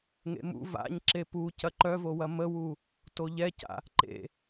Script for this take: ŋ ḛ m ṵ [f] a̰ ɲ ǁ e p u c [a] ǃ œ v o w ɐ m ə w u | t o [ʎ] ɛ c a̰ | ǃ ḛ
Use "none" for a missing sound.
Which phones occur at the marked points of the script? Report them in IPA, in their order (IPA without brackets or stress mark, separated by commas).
v, ɐ, ʎ